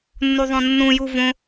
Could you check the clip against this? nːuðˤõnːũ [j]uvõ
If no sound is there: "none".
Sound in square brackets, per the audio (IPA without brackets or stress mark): j